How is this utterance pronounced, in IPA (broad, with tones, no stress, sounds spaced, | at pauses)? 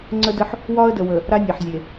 ŋ͡ǀ ə˦ d ə˦ ħ | w ɒ˦ ə̯ d ə˨ w ə˨ | ɾ a˦ nʲ ɛ˨ ħ zʲ e˨